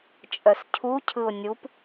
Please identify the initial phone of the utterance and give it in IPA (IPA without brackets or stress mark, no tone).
t͡ʃʼ